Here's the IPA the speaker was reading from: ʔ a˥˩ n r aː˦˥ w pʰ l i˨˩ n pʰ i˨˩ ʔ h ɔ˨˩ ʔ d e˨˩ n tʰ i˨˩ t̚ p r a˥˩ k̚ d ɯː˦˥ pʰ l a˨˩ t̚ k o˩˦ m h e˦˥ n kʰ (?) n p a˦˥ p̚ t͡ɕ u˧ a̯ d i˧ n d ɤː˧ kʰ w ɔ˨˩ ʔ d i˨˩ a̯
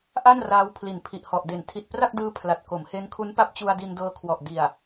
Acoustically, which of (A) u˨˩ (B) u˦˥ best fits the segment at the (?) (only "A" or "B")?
B